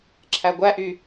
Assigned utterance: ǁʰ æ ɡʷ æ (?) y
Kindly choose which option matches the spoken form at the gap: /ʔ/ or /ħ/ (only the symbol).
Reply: ʔ